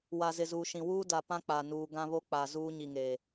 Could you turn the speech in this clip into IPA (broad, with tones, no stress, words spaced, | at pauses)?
wa˨zɪ˨ zuː˨ʃĩ˨ wuː˦da˨pã˦ k͡pa˨ nuː˨ɡã˦βo˦ k͡pa˨ zuː˦ɲi˨ŋe˨